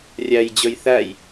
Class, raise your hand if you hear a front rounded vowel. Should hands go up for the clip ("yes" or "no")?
no